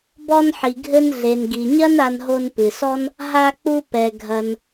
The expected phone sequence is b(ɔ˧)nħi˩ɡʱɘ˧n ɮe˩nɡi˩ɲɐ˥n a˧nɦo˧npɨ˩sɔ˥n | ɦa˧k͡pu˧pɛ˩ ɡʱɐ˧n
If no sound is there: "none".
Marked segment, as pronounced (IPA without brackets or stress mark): ɔ˧